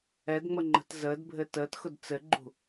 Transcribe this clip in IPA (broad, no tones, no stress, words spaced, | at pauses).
ɛdŋ͡məŋ͡ǃə̤t zəːdbʱɘ təːtxʊd t͡sɘɡ͡ǃṳ